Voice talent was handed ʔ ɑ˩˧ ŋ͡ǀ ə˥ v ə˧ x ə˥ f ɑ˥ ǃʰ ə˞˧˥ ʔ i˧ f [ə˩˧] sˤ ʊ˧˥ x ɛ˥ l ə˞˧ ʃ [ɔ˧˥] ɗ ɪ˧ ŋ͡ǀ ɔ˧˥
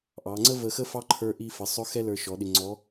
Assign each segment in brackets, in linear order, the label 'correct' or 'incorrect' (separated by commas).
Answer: correct, incorrect